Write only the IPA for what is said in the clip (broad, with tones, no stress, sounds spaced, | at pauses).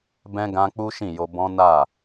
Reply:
b ɛ̃˦ ɡ ã˦ k͡p u˦ ʃ ĩ˦˨ j o˧ b ɔ̃˦ n a˦˨